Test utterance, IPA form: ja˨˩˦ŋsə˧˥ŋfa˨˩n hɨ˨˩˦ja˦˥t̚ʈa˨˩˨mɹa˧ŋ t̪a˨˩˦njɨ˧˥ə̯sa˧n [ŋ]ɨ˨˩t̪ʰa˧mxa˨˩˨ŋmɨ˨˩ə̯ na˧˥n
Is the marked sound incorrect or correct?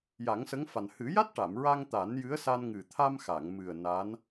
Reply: correct